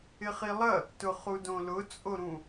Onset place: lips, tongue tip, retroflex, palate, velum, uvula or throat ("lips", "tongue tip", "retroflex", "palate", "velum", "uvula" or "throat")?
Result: uvula